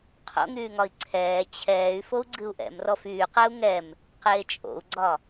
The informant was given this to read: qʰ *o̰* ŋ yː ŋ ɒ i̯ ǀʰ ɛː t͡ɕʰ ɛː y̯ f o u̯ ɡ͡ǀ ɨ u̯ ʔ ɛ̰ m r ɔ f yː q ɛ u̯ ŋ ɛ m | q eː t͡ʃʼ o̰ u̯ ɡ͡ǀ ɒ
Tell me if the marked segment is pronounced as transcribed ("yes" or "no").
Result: yes